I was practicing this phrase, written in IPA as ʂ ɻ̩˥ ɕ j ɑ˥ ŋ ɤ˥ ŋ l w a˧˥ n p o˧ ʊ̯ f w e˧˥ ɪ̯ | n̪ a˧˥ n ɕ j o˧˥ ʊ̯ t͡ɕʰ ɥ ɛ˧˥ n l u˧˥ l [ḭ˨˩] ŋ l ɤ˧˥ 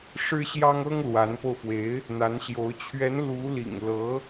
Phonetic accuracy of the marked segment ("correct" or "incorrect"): correct